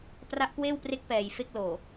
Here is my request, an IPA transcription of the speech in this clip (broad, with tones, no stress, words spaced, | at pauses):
pra˦˥ʔkweː˥˩wpre˦˥k̚ pɛː˨˩j fe˥˩k̚loː˨˩